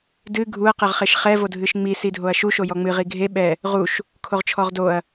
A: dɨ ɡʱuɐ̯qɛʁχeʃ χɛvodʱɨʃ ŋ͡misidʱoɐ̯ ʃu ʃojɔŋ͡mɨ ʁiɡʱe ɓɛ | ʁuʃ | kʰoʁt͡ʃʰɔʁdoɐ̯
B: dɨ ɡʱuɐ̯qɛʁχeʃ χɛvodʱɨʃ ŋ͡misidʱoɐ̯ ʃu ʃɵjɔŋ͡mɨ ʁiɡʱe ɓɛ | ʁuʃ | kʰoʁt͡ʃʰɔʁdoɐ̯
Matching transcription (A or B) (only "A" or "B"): A